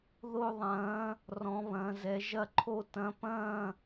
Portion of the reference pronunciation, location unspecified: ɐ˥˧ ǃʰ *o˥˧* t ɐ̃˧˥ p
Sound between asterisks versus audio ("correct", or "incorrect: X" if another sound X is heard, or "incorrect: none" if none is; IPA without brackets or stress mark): correct